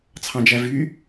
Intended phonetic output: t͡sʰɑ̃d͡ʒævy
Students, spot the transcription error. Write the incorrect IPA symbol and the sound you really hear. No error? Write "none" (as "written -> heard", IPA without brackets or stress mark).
none